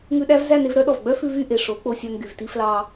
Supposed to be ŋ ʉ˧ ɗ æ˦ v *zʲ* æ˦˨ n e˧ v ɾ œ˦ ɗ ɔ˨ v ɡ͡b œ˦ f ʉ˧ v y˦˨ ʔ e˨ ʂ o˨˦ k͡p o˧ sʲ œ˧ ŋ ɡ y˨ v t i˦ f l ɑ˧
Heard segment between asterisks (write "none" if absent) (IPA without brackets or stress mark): z